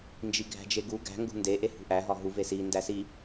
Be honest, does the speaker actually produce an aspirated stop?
no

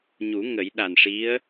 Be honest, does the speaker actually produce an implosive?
yes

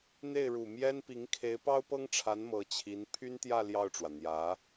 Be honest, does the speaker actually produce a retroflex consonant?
yes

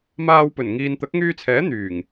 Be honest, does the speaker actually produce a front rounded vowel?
yes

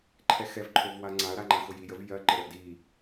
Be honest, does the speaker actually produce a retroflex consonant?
no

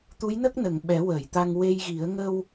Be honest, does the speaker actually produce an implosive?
yes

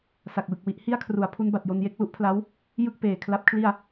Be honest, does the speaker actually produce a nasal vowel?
no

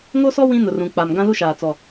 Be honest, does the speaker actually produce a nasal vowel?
yes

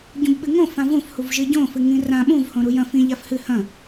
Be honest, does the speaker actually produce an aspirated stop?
no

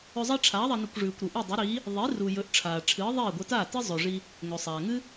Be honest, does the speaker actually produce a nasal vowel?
no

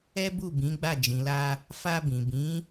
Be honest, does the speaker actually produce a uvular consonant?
no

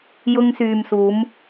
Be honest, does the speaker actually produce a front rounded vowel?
yes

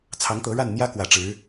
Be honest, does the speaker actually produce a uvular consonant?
no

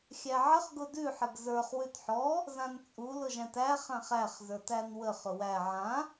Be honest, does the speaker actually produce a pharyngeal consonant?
yes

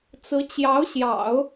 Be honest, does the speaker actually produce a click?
no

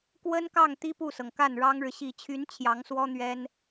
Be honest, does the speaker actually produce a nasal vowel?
no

